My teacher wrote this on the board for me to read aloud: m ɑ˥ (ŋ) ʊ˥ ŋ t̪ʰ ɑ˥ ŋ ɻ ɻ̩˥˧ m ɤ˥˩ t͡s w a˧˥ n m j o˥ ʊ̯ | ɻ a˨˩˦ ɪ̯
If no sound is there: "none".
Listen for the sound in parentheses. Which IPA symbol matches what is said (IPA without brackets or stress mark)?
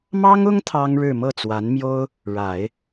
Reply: ŋ